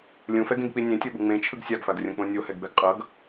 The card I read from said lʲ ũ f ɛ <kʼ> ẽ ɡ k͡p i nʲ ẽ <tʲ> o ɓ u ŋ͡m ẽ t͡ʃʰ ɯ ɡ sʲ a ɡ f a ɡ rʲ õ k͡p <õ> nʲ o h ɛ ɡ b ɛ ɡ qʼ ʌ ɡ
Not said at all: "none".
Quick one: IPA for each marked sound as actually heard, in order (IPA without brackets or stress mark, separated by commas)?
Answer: ɡ, tʲ, õ